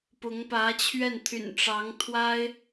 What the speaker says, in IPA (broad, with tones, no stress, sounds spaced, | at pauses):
p ʊ˧˥ ŋ p ä˧˥ t͡ɕʰ ɥ ɛ˥˩ n t̪ʰ y̰˨˩ n ʈ͡ʂ ɑ˧˥ ŋ t̪ʰ w a˥ ɪ̯